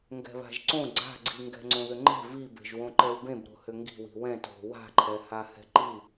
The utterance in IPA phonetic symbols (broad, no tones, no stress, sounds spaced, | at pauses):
ŋ ɡ ɛ̤ β a̤ ʒ ǀ õ ɡ͡ǀ a̤ ɡ͡ǀ i ŋ ɡ ɛ̤ ŋ͡ǀ õ ð ʏ ŋ͡ǃ e̤ v i b e̤ ʒ w õ ǃ ɛ w b ẽ b ɾ o̤ h ʏ ŋ ɡ i̤ w i̤ w ɛ̃ t o̤ w a̤ ǃʰ ɛ h a h ɛ̤ ǃ i